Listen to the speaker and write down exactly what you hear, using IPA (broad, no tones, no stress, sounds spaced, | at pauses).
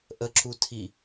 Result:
ʔ ə ǁ u tʰ i